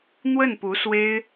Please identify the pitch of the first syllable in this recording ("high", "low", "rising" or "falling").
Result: falling